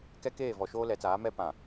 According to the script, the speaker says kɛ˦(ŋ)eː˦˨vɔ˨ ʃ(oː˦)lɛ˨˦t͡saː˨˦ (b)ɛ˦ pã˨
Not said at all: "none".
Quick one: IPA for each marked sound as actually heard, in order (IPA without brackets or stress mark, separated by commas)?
k, oː˦, m